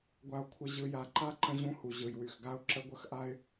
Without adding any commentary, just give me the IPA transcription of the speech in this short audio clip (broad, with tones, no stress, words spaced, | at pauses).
ɡʷa˨ʊ̯kʷʰɪ˨ ʑɯ˨ja˨ǃa˦ ǃə̃˦ʑũ˦hu˨ ʑɯ˨jwy˨xɡa˦ʊ̯ ǁə˦ɡʷə˦xʔa˦ɪ̯